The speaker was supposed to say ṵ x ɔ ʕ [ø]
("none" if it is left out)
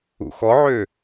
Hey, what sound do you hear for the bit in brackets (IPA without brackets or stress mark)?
ø